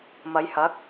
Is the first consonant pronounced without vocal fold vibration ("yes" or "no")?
no